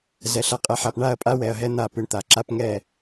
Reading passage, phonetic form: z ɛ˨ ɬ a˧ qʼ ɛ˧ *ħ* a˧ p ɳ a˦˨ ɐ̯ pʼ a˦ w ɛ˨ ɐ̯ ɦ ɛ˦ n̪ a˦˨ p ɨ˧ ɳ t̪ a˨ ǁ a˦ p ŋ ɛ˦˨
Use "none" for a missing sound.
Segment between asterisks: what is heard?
ħ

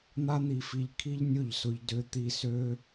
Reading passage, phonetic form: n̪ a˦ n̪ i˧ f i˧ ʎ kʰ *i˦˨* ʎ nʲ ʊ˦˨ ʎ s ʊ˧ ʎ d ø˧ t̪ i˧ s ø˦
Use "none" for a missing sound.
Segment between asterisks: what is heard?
i˦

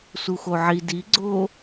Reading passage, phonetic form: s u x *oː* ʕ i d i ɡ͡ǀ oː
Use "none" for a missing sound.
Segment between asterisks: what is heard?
o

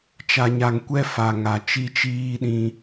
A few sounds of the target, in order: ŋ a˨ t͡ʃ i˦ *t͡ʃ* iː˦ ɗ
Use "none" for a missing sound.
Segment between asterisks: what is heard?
t͡ʃ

